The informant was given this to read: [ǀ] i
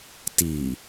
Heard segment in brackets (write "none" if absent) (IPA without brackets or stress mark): t